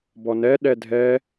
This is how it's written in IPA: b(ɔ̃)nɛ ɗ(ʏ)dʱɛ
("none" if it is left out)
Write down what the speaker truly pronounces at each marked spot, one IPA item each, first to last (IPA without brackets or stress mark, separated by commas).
ɔ, ɛ